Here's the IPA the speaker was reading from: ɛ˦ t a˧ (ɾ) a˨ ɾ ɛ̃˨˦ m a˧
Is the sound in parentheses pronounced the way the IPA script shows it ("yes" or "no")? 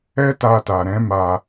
no